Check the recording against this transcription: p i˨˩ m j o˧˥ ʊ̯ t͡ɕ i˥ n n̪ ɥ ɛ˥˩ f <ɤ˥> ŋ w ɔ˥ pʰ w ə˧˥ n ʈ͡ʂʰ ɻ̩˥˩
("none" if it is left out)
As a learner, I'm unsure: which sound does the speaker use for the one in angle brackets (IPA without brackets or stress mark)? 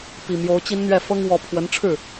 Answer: ɤ˥